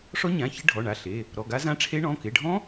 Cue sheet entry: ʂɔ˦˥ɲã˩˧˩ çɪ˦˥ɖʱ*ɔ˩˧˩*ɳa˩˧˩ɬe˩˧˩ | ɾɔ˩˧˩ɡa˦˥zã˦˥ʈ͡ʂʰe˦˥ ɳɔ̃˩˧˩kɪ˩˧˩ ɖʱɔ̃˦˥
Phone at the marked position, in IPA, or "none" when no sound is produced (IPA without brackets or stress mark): ɔ˩˧˩